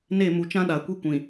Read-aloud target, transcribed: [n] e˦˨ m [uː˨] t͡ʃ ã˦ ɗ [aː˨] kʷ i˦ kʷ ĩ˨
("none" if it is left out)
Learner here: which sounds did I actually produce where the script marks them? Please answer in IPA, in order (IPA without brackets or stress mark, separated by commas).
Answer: n, u˨, a˨